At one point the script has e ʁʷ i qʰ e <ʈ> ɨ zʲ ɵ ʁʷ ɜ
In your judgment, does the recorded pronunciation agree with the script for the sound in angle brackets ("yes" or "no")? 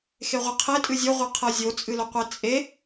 no